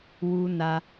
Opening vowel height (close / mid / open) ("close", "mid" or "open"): close